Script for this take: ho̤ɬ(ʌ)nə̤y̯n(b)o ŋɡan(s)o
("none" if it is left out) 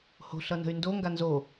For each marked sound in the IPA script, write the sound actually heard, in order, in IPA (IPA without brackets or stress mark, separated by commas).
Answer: ʌ, d, z